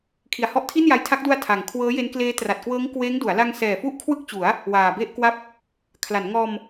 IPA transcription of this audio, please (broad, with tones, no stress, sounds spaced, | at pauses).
kʰ i˨˩ a̯ h ɔ˦˥ ʔ tʰ i˥˩ n j a˧ j tʰ a˦˥ k̚ d u˧ a̯ tʰ a˨˩ ŋ kʰ w ɤː˦˥ j e˦˥ n k l eː˦˥ t r a˨˩ t̚ k w ɤː˦˥ ŋ k w eː˦˥ ŋ d u˩˦ a̯ l a˧ ŋ s ɛː˨˩ f u˦˥ ʔ kʰ w ɯ˥˩ k̚ t͡ɕ u˩˦ a̯ | w aː˨˩ b e˥˩ ʔ k w a˥˩ p̚ | kʰ l a˩˦ n ŋ ɔː˧ m